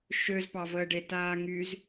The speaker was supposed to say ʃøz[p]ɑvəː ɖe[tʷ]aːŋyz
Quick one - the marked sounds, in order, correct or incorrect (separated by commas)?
correct, incorrect